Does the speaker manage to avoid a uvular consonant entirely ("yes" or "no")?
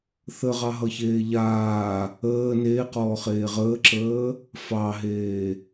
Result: no